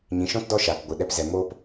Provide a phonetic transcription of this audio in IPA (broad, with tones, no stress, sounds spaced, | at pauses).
ɲ ĩ˨ ʃ ɔ̃˦ t d ɔ˦ ʃ aː˨ k ɡʷ ɨ˨ ɗ ɛ˧ p z ɛ˨ m oː˦ p